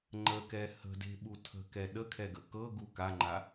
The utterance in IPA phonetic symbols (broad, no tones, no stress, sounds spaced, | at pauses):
ŋ͡ǃ ə k ɛ h ə̤ d e̤ ɓ u tʰ ə̤ k ɛ ɗ ə kʰ ɛ ɡ ə k ɤ ɡ u k a ŋ͡ǃ a